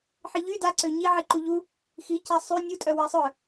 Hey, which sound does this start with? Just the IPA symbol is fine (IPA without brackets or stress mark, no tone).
ħ